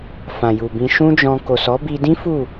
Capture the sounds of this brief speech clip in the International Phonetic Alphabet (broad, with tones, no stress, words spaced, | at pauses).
fã˨ju˨bĩ˧ ʃũ˦d͡ʒɔ̃˧ ko˨sɔ˨˦bi˧dĩ˦ fu˦˨